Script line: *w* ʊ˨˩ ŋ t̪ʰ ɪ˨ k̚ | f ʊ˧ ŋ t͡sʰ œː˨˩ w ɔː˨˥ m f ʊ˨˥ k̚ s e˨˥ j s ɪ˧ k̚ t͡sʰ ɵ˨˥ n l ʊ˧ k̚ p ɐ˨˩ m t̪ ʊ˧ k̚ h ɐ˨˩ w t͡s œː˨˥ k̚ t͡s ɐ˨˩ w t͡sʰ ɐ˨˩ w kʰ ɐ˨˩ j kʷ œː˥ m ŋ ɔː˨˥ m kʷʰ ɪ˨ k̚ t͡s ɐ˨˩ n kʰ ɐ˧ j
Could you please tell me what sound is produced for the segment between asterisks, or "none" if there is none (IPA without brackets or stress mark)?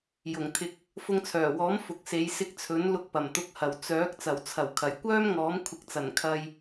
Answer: j